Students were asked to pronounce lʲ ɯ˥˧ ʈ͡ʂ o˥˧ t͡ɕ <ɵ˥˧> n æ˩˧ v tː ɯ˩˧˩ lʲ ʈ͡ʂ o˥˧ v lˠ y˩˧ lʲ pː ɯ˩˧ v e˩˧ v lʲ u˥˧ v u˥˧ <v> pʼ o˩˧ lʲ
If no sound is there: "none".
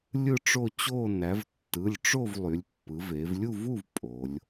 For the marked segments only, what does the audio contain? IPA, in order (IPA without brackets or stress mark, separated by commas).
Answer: o˥˧, v